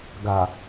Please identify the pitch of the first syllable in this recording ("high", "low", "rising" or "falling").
low